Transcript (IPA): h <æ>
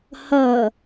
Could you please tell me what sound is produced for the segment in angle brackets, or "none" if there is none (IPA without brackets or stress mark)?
ɐ